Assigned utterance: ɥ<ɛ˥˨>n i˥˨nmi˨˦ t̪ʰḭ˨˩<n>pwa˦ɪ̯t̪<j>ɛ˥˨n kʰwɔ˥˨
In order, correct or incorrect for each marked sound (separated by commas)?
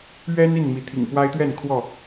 incorrect, incorrect, incorrect